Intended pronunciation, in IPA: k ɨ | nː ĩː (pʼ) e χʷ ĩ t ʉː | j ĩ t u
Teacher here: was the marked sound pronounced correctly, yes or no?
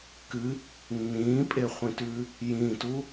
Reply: yes